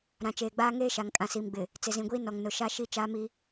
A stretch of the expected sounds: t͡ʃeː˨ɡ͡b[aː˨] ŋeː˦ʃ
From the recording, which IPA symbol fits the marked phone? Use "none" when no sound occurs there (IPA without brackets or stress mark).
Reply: aː˦